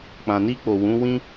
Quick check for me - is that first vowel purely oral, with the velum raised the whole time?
no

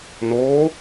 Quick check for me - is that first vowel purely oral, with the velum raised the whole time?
yes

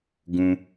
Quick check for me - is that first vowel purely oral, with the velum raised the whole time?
no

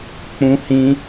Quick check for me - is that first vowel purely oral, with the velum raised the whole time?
no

